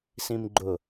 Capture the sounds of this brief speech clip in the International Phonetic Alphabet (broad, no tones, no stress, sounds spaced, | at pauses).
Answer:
s ĩ m ɡ͡ǃ ʊ